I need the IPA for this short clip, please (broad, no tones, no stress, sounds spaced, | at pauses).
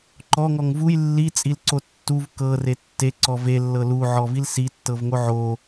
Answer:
ǃ ɔ ŋ ɔ ŋ v u j lː i t͡sʼ i l ǀ o tː u v k ɤ r e tː e ǀ ɔ v e lː ɤ l u ʕ ɔ v i l s i tː ɤ v ŋ o ʕ o